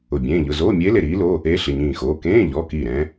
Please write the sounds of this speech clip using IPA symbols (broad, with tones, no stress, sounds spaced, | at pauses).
ʊ˧˩ bʲ ẽː˧˥˧ ʎ ʊ˩˧˩ z oː˧˥˧ mʲ eː˧˥ l e˧˩ ɾ iː˧˥ l o˧˥˧ | e˧˥ ɬ ɪ˩˧˩ ɲ ĩː˧˩ x oː˩˧˩ k ẽː˧˥˧ ʎ ɔ˩˧˩ k i˧˩ ɾ ɛ̃˧˥